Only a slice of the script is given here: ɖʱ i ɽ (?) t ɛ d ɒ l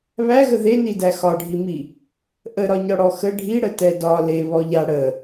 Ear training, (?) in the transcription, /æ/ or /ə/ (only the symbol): ə